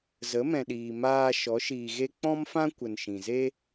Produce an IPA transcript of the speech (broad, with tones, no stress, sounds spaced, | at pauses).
z ə˨˦ m ɛ̃˨ ɗ iː˨ m aː˧ ʃ ɔ˨˦ ʃ iː˨ ɣ e˦ k͡p ɔ̃˦ m f ã˦ kʷ ə˨ n ʃ ĩ˨ z e˦